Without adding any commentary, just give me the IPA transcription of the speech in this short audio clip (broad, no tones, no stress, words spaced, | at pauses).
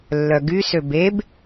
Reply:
lːœɡy søbeb